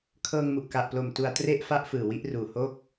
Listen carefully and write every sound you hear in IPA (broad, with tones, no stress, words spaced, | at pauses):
kʰɤː˧ŋmu˨˩ʔka˨˩ʔplo˨˩m tu˧a̯tre˥˩ʔ fa˥˩ʔfɯː˨˩wi˦˥ʔruː˨˩ ho˥˩k̚